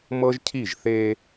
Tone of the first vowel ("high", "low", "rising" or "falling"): high